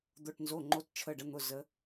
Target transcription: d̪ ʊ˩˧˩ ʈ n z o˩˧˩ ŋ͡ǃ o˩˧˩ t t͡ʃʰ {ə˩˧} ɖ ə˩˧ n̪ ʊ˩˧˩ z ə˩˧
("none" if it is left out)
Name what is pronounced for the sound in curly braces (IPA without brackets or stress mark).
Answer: ə˩˧˩